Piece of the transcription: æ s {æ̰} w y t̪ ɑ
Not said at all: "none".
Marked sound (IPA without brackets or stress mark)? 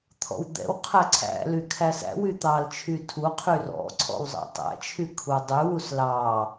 æ̰